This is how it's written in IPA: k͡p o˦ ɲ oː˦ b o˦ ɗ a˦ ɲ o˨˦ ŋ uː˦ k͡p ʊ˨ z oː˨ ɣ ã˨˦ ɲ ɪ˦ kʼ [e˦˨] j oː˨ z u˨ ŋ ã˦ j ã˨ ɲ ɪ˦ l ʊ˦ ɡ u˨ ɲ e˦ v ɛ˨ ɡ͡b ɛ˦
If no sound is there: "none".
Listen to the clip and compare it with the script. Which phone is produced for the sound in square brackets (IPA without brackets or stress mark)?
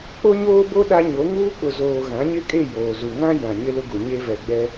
e˦˨